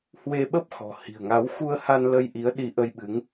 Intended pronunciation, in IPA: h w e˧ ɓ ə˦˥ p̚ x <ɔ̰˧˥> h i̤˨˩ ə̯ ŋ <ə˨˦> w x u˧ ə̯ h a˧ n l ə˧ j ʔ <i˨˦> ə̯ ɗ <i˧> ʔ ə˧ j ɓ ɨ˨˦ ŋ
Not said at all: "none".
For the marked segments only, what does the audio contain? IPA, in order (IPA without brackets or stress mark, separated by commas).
ɔ̤˨˩, a˨˦, i˨˦, i˧